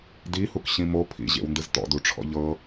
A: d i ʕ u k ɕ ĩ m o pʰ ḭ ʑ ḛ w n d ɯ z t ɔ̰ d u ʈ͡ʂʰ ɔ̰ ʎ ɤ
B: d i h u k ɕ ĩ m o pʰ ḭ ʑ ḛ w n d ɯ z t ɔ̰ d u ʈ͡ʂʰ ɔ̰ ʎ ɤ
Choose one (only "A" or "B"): B